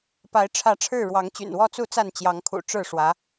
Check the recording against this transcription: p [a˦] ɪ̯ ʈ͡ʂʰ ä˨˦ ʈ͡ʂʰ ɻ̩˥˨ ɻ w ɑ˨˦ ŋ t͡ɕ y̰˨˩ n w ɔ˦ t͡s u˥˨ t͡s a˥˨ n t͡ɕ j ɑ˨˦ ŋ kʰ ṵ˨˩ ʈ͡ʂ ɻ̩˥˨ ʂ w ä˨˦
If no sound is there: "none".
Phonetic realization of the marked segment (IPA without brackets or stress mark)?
a˨˦